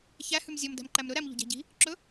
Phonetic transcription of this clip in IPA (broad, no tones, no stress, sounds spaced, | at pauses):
ç æ h ʉ m zʲ ɔ m d æ̤ m ǃ æ m ɾ ɵ ɾ æ m ʎ o̤ ɟ æ̤ ɟ i̤ | ǁ ɵ